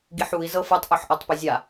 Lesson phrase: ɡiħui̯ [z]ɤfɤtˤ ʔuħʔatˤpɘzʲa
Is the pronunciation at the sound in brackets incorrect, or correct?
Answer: correct